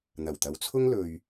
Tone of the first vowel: low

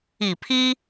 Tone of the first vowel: low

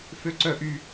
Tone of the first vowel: high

